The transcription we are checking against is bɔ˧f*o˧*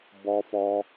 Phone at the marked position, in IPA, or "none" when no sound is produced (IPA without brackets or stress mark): ɔ˧